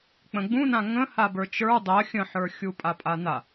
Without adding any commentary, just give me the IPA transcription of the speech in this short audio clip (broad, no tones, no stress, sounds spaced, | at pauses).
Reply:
k͡p ə̃ ɡ͡b ũ n ã ŋ ə̃ h a b ə˞ t͡ʃ ə˞ dˤ ɜ xʲ ə̃ ħ ə˞ xʲ u pʼ a pʼ a n a